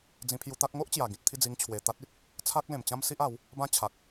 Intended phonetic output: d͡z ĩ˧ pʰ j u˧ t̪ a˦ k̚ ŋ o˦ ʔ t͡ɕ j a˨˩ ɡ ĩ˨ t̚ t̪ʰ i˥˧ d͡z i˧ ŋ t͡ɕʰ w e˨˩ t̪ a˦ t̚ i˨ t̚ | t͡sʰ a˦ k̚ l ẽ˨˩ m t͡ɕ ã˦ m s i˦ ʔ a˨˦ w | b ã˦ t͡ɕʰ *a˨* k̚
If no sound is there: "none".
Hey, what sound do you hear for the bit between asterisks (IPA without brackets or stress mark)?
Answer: a˨